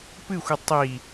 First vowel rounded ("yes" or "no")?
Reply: no